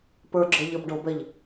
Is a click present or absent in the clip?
present